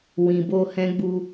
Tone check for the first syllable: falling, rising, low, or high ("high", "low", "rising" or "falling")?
low